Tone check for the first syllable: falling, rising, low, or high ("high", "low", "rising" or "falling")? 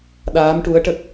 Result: rising